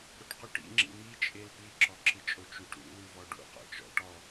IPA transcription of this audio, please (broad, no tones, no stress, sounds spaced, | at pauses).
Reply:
ɾ o ʈ q u ʈ ḭ ŋ͡ǁ ḭ m i t͡ʃʼ e l p i ǁ ɔ ǁ ɨ t͡ʃʼ o t͡ʃ u ʈ ɾ ṵ l u v ɔ ɖ ṵ q ɔ̰ t͡ʃ ɔ̰ ʈ ɔ